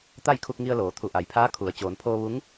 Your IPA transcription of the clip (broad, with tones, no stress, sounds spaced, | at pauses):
t̪ a˥˨ j kʰ u˧ k̚ ŋ i˧ ə̯ l oː˩˧ t̪ʰ u˧˩ ʔ a˩˧ j pʰ aː˧˥ kʰ u˩˧ ə̯ t͡ɕ oː˩ n pʰ oː˧ ʋ u˧˥ ŋ